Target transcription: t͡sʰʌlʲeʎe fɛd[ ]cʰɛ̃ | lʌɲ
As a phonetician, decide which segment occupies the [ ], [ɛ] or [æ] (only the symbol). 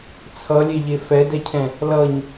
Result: ɛ